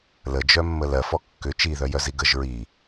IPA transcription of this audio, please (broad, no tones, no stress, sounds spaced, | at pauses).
l ə d͡ʒ œ mː ə l ɜ f ɔ kː ʏ t͡ʃ i ð œ j œ z i ɡ ə ʒ ɹ i